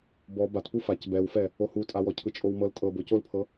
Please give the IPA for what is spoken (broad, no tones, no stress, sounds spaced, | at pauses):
b ɔ b a t p u f a c b ɛ w f ɛ | o h u tʼ a w ɔ cʰ ɯ t͡ʃʼ o w m ɤ l tʼ ɤ b o c o l pʰ ɤ